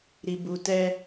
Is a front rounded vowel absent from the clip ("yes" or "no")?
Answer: yes